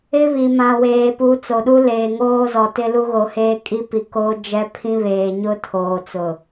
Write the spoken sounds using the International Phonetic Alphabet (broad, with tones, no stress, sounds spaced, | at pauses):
ɪ˦ β i˨ m ã˨ w eː˨ p u˨˦ t͡s o˨ ɗ u˦ l eː˨ ŋ oː˦ z ɔ˨ t ɪ˦ l u˦ ɣ o˨˦ h eː˦ kʼ i˦ p i˨ k oː˦ d͡ʒ ɛ˦ pʰ ĩ˦ β eː˨ ɲ ʊ˦ tʰ oː˨ t͡s ʊ˨